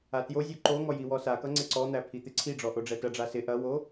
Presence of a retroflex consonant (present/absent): present